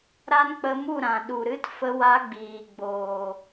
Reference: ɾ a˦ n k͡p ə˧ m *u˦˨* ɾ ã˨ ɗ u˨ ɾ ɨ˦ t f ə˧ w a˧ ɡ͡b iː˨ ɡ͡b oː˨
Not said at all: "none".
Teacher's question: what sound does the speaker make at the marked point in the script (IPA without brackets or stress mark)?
u˦˨